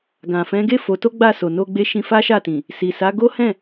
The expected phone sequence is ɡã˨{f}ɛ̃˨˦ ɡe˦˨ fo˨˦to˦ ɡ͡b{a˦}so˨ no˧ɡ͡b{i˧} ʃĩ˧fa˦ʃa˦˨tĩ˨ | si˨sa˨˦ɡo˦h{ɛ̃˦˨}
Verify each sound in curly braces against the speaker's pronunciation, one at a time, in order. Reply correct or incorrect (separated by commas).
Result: correct, incorrect, incorrect, correct